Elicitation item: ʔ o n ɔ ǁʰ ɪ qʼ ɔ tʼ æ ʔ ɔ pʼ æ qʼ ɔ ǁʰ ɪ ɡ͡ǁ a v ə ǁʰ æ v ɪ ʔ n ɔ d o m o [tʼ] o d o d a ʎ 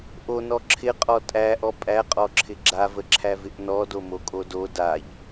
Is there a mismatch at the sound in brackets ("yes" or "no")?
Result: yes